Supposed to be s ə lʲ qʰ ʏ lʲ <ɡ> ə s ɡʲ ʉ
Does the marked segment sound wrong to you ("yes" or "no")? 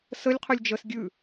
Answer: yes